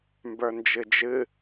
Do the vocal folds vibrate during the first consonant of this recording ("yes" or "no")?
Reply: yes